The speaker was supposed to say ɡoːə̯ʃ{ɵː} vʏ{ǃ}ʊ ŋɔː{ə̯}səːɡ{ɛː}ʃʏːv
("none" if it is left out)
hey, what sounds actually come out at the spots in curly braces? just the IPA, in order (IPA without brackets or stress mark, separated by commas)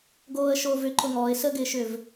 oː, ǃ, ɪ̯, ɪː